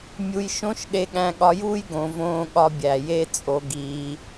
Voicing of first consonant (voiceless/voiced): voiced